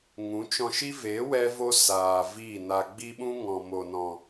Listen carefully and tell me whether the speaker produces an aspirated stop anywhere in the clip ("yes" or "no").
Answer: no